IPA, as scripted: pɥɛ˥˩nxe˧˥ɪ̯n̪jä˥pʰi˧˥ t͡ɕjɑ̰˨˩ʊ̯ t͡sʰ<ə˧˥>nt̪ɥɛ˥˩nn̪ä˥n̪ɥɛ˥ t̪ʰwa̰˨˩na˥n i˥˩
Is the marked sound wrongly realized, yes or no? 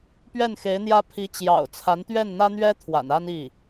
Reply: yes